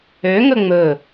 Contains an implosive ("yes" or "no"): no